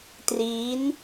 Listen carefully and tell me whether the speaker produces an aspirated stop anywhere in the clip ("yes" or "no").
no